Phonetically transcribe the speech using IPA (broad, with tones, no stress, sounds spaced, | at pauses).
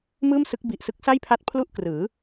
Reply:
m ɯː˥˩ m s ɯ˦˥ k̚ b i˨˩ ʔ s ɯ˦˥ k̚ s a˥˩ j pʰ a˦˥ t̚ pʰ l u˥˩ ʔ k r ɯː˩˦